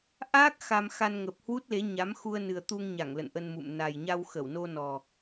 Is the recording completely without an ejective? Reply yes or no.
yes